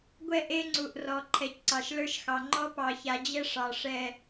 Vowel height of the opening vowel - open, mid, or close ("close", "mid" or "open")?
mid